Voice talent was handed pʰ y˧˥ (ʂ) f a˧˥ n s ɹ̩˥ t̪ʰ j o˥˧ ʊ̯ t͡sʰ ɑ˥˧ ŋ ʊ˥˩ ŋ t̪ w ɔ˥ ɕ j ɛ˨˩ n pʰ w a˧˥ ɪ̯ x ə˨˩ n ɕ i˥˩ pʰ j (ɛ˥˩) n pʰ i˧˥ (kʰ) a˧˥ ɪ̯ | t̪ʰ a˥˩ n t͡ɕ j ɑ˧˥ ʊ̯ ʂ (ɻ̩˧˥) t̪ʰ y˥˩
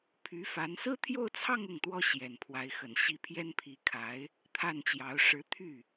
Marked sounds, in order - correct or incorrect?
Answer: incorrect: none, incorrect: ɛ˥, correct, correct

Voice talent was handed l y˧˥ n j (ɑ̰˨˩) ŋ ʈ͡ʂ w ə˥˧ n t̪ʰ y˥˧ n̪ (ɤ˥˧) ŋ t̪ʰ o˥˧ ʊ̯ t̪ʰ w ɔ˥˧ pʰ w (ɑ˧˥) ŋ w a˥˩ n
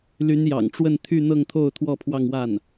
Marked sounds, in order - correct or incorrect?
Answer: correct, correct, incorrect: ɑ˥˧

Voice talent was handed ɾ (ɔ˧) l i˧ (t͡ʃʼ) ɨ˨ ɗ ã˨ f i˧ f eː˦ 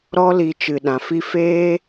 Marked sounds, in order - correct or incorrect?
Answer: incorrect: ɔ˦, incorrect: t͡ʃ

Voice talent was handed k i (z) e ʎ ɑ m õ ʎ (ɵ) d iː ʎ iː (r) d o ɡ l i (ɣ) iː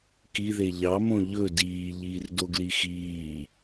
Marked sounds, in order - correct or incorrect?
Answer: incorrect: ð, correct, correct, incorrect: x

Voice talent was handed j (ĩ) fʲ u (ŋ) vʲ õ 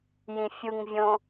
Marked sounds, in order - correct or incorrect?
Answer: correct, correct

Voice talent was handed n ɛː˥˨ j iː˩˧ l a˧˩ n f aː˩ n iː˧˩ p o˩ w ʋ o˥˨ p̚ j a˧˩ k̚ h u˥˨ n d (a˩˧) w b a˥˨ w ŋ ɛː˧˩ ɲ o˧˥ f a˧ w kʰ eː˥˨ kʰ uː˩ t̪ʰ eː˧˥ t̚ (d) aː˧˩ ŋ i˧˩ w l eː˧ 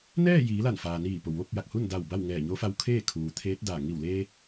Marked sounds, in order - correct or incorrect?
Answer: incorrect: a˧˩, correct

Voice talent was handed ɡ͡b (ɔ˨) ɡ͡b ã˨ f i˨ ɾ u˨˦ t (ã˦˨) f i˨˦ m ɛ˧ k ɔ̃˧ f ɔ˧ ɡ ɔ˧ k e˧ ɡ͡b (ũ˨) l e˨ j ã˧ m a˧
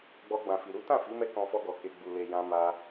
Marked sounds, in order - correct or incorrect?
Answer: incorrect: ɔ˧, correct, incorrect: u˨

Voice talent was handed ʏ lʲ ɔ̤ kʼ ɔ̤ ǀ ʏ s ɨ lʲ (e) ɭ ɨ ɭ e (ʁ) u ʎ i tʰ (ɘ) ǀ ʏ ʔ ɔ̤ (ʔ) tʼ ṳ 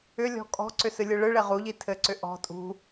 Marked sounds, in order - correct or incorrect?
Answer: incorrect: ɨ, correct, correct, incorrect: none

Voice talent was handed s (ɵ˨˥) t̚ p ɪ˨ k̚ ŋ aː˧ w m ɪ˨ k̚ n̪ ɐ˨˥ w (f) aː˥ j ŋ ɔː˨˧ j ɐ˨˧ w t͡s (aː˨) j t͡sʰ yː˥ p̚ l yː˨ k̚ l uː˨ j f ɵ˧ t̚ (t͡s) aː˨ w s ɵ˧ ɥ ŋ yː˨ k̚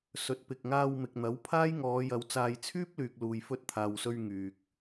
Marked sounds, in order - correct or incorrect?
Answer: correct, incorrect: pʰ, incorrect: aː˧, incorrect: t̪ʰ

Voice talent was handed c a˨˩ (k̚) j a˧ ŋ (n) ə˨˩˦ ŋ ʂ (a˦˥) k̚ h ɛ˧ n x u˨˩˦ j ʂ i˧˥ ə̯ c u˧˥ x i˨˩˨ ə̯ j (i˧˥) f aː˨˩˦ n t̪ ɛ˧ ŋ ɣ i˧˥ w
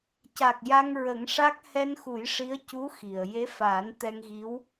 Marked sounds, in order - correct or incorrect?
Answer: correct, incorrect: ɹ, correct, incorrect: e˧˥

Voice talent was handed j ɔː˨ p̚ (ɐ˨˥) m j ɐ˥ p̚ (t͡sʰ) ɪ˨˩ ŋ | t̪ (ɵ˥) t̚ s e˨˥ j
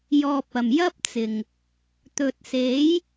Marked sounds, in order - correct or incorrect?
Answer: incorrect: ɐ˨˩, incorrect: t͡s, incorrect: ɵ˨

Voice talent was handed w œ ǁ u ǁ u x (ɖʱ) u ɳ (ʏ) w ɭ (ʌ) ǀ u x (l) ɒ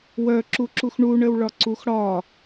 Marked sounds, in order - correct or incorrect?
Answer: incorrect: ɳ, incorrect: ə, incorrect: ɒ, incorrect: ɽ

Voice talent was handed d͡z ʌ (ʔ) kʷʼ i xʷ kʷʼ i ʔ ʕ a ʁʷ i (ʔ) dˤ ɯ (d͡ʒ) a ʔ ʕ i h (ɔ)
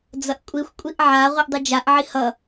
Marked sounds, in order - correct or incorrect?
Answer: correct, correct, correct, incorrect: ʌ

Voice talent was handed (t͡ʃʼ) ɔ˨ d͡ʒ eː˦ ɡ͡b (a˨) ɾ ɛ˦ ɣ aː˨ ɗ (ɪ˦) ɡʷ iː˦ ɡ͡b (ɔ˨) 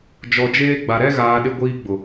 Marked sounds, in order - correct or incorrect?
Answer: incorrect: d͡ʒ, correct, correct, incorrect: ʊ˨

